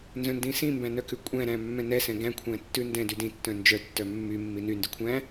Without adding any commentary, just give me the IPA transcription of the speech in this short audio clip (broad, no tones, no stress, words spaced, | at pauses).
nzœ̃ndĩsĩmbæ̃ nœkʉkʷʼæ̃ɾæ̃ mːɛ̃nɛsɛ̃ ɡæ̃kʷʰæ̃ tːʉndɛ̃dy dĩtːœ̃ nd͡ʒœtːœ mːy mːinyndy kʷʰæ̃